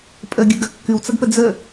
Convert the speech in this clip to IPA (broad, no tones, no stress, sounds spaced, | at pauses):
pʼ ə ɡʲ ɨ ɡ ɐ kː ɨ w t͡s ɐ ɡ p ə d͡z ə